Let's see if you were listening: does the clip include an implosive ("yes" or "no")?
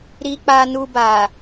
no